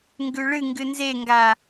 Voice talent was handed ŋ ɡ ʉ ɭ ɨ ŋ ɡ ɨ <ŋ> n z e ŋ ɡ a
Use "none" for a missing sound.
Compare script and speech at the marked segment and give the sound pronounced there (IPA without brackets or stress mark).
none